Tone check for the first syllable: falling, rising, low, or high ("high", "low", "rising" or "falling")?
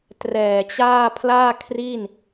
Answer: low